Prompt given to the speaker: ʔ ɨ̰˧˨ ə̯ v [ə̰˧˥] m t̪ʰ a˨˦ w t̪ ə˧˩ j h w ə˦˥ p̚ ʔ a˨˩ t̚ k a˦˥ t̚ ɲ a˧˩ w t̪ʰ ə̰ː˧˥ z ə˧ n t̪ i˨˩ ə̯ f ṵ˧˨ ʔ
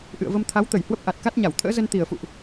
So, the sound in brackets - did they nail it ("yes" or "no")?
no